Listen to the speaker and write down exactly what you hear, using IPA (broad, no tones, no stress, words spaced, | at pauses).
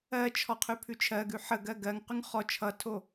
ɜt͡ʃʰɔ qʰʉpʰʉt͡ʃʰɜɡʉ ħəɡɜ ɡɜŋqʉŋ χɔ t͡ʃʰʌtʰo